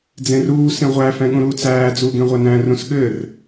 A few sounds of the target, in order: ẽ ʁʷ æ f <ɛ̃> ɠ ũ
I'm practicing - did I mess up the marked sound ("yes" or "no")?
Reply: no